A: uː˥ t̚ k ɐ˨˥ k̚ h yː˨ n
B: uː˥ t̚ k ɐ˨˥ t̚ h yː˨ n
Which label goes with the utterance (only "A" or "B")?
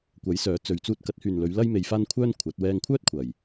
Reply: B